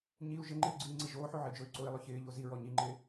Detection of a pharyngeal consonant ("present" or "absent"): present